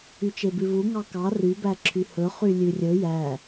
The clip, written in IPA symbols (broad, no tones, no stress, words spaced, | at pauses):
yt͡ʃebʉvu ŋɑkɑ rybæǁʰy hɵχy lʲʉrʲɵ jæ